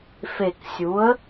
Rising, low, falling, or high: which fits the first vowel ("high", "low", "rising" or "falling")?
low